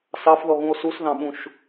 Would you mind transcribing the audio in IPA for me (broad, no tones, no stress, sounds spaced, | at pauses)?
s ɑ f ð ɔ ɣ ũ o̯ s u s ð ɑ̃ ɓ ũ ʃ